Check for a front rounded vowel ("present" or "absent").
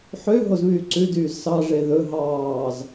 present